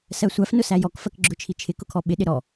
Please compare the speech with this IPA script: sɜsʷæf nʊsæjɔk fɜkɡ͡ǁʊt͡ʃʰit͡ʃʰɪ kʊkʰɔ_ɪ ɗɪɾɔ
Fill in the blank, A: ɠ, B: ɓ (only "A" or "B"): B